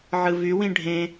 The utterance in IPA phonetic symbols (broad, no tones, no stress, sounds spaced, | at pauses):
ʕ ɯ v y w ĩ ɖʱ ẽ